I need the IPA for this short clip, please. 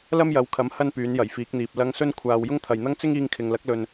l ɐ˥ m j ɐ˨˥ w kʰ ɐ˨˥ m h ɐ˥ n p yː˨˥ n j ɐ˨˩ j f iː˨˥ k̚ n̪ iː˨ p̚ l ɐ˧ ŋ s ɵ˥ n kʷʰ aː˧ w j ʊ˥ ŋ t̪ʰ ɐ˨ j n̪ ɐ˥ ŋ t͡s ɪ˥ ŋ iː˧ ŋ kʰ ɪ˨ ŋ l ɐ˨˥ k̚ l ɵ˨ n

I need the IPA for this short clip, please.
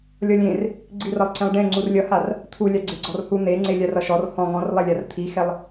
lʲ ɔ lʲ ẽ r | ɡ͡ǀ i r ʌ lˠ ǀ ẽ lˠ ɖ ẽ ŋ͡ǀ u r lʲ ʌ h a r | t̪ʰ u lʲ a ɡ͡ǀ e ɡ͡ǀ ɔ r h u n̪ e ŋ͡ǀ e lʲ a r ʌ ʃ ɔ r h ɔ̃ ŋ ɔ̃ r lˠ ɛ lʲ a r t̪ʰ i x ɛ lˠ

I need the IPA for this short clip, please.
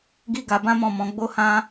ɡ i˦ ɡ a˧ b ã˦ m ɔ̃˦˨ m ɔ̃˧ ɡ͡b o˦ h ã˦

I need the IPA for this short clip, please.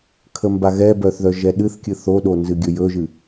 kʰ ə m b a ɣ ɛ b œ θ ð œ ʒ ɛ ɗ ɨ θ kʲ ɨ θ o ɗ o n z ɨ ɡʲ ɵ j ɵ ʒ ɨ

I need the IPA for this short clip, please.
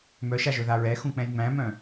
m œ ʃ a ʒ ɵ ð a ɹ ɛ x ũ k͡p ɛ̃ j ŋ͡m æ̃ m œ̃

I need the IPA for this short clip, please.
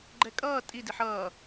ɡ͡ǃ ɛ kʼ ʌː tʼ i d i ħ ʌː

